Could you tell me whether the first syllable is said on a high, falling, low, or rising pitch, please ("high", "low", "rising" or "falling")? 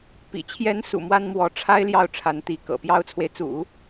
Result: low